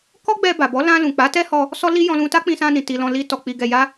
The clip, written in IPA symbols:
kɔ˦ɡ͡bɛ˧ ba˨bɔ˨˦lã˧lũ˨ k͡pa˨˦tɛ˦hɔ˧ | sɔ˦li˦ jɔ̃˧lũ˧ta˦ k͡pĩ˧sã˧nĩ˨ ti˨lɔ̃˨ li˧ tɔ˨k͡pi˨ɡɛ˨ ja˧

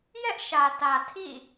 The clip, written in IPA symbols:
jɛ˦ʔʃä˨tä˨ tʰḭ˦˨

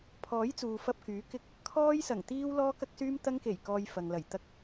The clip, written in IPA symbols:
pʰɔː˨˥jt͡suː˨fɐ˧p̚ kyː˨˥kɪ˥k̚ | kʰɔː˥jsɐ˨˩ŋ t̪iː˥wlɔː˥ kɐ˥k̚syː˥mt̪ɐ˥ŋ ke˨˩j kɔː˧jfɐ˨ŋlɐ˨˩j t̪ɐ˥k̚

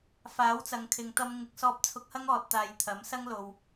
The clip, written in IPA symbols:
faː˨˥wt͡sɐ˨ŋ kʰɪ˨ŋt̪ɐ˧m ŋɪ˨˥k̚sɔː˧p̚t͡sʰʊ˧k̚hɐ˥ŋ ɔː˨t̚t̪aː˨j t̪ʰɐ˨˥msɐ˥ŋ lo˨w

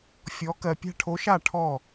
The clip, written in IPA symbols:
fʲɔ˨˥ kɜ˨pʲa̤˥˧ʈʰo˨˥ʃa˥˩ ʈʰɔ˥˩

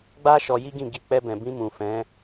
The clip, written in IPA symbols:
ɡ͡ba˦ ʃɔ˧ji˦ɡĩ˦˨ɡi˧ k͡pɛ˧bɛ̃˨bĩ˧ mũ˨fɛ̃˨˦

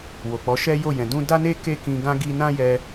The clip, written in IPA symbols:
wo˨k͡pɔ˨˦ʃɛ˦ jo˦˨ jɛ̃˨dũ˧da˦ne˦ ke˦kĩ˧ɡã˦ ɡi˦ nã˦jɛ˧

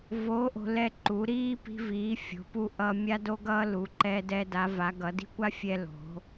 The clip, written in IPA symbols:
vo˨˦ ʔo̤˨˦lɛ˦ǃu˨˦ ɾiː˦ pi̤˦viː˨˦ fʲo̤˨˦pu˦ʔʌː˦ mʲa˦do˦ɡʌː˦ lu˨˦ǃɛ˦dɛ˦ da˨˦va˨˦ɡʌ˨˦ di̤˦kʷa˦ fʲɛ˦lo̤˨˦

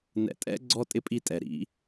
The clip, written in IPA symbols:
nɛ̰˨tʼɛ̰˥ ɡ͡ǀɔ˥tʼɪ˥pʼi˦tʼɛ˩ ɾḭ˨

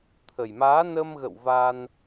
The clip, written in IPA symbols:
t̪ʰə˨˩jmaː˨˦nə˧mɣə̰˧˨w va˧n

